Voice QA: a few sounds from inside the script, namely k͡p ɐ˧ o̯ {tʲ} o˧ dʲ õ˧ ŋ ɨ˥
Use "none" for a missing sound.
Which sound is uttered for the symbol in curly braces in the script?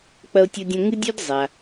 tʲ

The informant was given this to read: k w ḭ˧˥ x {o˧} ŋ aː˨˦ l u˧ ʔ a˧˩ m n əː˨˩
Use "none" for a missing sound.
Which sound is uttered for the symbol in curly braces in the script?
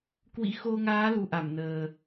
o˧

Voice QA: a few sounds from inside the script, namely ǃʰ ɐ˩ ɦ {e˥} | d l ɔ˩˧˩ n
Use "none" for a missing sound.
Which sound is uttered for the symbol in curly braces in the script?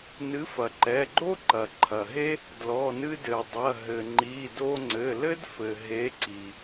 e˥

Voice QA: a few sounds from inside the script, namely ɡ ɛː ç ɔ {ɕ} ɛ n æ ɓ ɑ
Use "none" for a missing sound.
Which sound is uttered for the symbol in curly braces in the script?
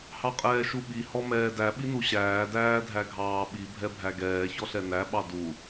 ɬ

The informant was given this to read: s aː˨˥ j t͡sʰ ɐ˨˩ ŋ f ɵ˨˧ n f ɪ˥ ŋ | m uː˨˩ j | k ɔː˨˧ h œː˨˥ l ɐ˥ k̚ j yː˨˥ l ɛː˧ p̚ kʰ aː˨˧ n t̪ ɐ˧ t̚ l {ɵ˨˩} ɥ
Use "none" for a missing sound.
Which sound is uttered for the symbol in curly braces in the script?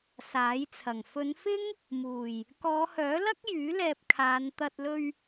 ɵ˧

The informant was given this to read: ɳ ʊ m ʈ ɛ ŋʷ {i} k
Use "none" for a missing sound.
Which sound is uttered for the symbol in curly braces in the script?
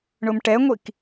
i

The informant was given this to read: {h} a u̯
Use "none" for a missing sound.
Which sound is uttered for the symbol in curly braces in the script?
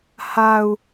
h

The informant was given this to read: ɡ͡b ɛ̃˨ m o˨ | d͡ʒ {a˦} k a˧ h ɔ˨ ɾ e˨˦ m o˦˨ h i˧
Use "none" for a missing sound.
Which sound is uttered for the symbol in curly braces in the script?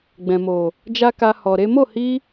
a˦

